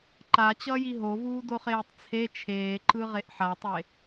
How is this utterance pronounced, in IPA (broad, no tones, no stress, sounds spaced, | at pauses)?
ǃ a t͡ɕ ʌː j i ɦ o v uː d o χ eː tˤ t͡sʰ e t͡ʃʰ eː ǃ ɯ ʁ e ʔ ħ a tˤ e